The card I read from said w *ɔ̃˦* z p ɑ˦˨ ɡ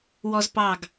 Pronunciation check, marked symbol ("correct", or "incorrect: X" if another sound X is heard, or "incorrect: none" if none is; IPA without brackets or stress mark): incorrect: ɔ˦